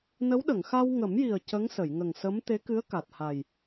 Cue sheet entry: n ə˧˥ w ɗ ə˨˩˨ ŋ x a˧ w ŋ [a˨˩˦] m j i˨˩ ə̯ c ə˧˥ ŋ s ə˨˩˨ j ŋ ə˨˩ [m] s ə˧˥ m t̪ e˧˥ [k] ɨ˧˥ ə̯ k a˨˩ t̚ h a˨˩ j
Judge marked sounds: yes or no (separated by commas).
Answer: no, no, yes